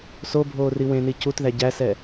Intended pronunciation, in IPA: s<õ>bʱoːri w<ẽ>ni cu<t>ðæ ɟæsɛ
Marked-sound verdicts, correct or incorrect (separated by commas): incorrect, correct, correct